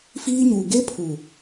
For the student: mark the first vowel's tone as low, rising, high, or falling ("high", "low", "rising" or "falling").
high